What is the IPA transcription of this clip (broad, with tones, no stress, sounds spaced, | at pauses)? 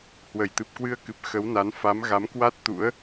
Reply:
h w ə˧˩ j t̪ ɨ˨˩ p̚ k w ɨ˧ ə̯ k ɨ˨˩ p̚ x ə˨˦ w n a˨˦ n f a˨˦ m ɣ a˨˦ m k w a˦˥ t̚ t̪ ṵ˧˥ ə̯